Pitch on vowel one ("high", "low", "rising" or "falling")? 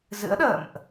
rising